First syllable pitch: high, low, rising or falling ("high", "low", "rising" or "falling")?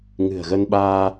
low